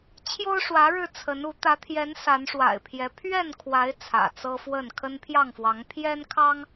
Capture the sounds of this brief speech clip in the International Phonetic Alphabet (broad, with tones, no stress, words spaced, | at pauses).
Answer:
t͡ɕʰjo˦ʊ̯ʂwä˨˦ɻɻ̩˧ t͡sʰə˨˦nu˨˦ t̪ä˨˦t̪ʰjɛ˨˦n sa˨˦nʂwa̰˨˩ɪ̯pʰjɛ˨˦ pʰɥɛ˥˨nkʰwa˨˦ɪ̯ t͡sʰä̰˨˩t͡sɤ˦fwə˥˨n kʰə˦n pʰjɑ˥˨ŋfwɑ˨˦ŋ pʰjɛ˦nkʰɑ˦ŋ